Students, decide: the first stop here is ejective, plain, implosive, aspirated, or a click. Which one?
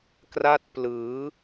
plain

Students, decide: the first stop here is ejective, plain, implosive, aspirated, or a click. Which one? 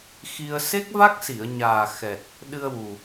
plain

